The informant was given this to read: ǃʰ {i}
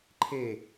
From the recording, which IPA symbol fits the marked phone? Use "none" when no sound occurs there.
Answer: e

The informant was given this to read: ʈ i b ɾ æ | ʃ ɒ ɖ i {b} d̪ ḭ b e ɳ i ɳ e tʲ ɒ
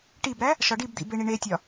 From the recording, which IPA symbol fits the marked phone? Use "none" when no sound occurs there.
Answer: b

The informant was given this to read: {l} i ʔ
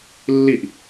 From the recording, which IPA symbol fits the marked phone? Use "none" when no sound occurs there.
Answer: lː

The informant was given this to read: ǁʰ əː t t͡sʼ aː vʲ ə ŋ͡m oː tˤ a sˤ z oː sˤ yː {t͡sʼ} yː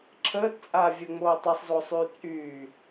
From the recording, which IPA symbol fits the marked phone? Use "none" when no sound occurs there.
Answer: t͡sʼ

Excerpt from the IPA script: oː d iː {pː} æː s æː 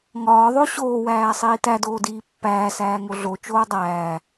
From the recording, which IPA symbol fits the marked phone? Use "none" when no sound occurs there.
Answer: pː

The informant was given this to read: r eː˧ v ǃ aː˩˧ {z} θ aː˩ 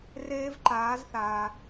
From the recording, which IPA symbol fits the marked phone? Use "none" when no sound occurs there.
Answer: z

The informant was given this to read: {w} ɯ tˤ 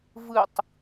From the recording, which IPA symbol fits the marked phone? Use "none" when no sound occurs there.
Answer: v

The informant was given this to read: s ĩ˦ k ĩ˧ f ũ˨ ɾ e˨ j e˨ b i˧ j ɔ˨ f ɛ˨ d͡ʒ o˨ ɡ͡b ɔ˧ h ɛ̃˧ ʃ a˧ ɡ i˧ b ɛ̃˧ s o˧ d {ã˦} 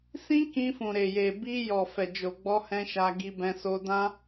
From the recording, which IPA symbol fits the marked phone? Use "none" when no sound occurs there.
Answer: ã˦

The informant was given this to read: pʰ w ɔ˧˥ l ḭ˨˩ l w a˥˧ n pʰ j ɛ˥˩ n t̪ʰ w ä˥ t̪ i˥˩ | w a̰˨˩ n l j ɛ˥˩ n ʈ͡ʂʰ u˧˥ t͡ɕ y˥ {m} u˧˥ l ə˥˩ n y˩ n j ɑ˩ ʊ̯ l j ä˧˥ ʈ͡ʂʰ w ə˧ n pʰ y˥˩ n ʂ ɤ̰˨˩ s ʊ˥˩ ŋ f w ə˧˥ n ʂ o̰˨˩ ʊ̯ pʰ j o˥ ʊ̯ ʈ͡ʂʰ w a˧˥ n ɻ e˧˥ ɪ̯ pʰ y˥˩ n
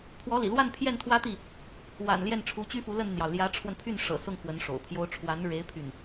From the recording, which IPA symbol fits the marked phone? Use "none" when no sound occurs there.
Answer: f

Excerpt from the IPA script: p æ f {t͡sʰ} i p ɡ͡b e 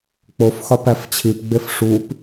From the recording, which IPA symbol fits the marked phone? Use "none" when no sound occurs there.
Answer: t͡ɕʰ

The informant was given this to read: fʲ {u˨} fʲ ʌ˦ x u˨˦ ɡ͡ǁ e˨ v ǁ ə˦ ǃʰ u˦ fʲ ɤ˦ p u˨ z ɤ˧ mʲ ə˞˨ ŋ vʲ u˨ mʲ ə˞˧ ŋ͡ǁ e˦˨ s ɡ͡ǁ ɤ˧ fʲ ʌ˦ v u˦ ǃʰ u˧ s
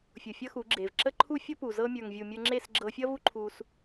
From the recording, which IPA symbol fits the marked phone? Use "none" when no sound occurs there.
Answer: u˨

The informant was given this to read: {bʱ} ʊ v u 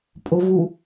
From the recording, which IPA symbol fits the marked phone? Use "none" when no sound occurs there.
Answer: pʼ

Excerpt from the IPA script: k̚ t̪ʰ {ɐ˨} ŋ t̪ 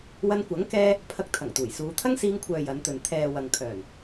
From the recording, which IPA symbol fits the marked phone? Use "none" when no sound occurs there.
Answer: ɐ˨˩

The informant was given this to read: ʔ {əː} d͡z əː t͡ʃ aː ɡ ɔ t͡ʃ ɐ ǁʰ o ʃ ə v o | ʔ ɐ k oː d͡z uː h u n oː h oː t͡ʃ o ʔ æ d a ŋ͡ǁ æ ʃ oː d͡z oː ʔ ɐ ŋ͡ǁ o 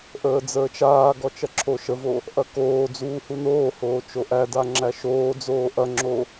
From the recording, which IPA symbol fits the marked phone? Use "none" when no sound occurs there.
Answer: əː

